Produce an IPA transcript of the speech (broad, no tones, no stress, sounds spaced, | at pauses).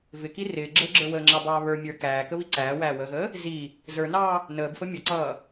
v ɪ k i r ɪː ɡ͡ǁ əː ɡ͡ǁ ə˞ w əː ŋ͡ǁ ɑ b ɑː β ə˞ mʲ ə˞ k æː k ə β i ǀ æː w æː w əː ɣ əː | z i | z ə˞ n ɑː | n əː b f ə mʲ ʌ ǀ ʌː